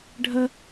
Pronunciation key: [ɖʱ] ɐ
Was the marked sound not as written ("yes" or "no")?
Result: no